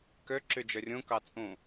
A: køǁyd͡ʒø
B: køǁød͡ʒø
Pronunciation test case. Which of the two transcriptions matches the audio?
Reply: A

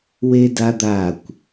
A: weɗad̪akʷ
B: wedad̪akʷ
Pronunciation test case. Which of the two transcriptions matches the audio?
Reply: B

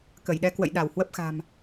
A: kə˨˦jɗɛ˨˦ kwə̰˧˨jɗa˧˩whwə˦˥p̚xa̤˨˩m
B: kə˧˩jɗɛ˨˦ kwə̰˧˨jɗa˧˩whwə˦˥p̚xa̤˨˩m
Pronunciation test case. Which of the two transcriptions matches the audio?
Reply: B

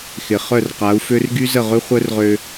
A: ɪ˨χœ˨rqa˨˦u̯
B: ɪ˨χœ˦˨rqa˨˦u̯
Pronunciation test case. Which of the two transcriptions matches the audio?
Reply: B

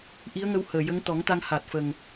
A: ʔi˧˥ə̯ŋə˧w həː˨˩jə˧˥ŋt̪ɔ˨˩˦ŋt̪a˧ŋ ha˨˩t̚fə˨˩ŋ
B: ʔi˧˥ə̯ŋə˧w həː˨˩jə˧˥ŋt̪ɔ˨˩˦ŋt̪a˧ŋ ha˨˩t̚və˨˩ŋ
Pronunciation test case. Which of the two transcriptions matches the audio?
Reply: A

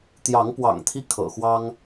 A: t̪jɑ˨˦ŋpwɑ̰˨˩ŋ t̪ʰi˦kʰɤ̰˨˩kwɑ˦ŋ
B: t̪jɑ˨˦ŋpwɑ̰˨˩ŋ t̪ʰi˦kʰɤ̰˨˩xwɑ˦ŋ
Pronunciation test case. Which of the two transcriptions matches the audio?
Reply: B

